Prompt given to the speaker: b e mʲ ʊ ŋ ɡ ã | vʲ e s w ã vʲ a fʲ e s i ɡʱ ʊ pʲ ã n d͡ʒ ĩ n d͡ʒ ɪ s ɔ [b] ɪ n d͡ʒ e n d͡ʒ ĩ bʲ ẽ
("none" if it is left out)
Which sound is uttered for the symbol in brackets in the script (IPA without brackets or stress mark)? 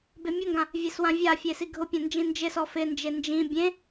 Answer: f